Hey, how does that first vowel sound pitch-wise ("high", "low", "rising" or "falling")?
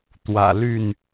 low